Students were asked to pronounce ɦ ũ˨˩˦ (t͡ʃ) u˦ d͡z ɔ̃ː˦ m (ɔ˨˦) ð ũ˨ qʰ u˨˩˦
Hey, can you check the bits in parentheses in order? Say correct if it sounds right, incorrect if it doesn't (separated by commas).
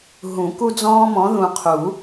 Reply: incorrect, incorrect